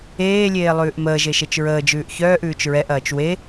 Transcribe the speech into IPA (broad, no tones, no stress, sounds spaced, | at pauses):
eː lʲ eː lˠ ʉː ʔ m əː ʒ e ʃ e t͡ʃ ɹ əː d͡ʒ ʉː ʔ ç œː ʔ ʉː t͡ʃ ɹ ɛ ʔ ɐː t͡ʃ w e